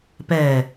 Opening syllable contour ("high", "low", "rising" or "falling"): low